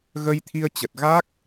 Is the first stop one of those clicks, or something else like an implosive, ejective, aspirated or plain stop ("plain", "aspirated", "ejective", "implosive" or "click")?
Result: aspirated